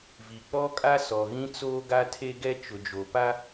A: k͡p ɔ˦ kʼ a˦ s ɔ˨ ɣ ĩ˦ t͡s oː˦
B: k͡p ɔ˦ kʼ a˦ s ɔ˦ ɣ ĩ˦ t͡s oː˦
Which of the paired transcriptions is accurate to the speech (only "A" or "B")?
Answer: A